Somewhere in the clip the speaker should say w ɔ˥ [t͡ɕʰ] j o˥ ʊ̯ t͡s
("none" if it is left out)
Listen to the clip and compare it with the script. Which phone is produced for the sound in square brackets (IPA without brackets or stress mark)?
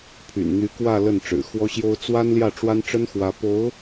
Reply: ɕ